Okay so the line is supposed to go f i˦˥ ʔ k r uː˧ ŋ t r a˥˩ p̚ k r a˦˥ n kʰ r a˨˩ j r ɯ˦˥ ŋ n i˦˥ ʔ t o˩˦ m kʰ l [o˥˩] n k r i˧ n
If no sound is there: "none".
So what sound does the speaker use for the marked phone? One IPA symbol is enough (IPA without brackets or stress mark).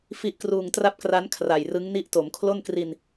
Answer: o˥˩